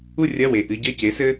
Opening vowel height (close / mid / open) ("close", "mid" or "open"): close